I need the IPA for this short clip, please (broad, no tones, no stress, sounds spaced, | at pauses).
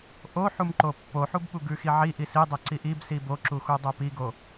ʔ o ħ u m ǃ o pː o ħ u b ɓ u ɡ ʉ x i ʕ i ʔ i s i dˤ o ǀ i ʔ i b s i b o ǁ u x u dˤ o p i ɡ o